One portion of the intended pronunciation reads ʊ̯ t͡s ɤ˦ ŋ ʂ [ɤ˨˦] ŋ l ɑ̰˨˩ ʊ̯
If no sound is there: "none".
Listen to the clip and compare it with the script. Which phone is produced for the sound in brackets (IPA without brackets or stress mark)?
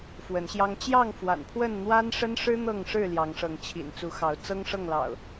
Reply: ɤ˥˨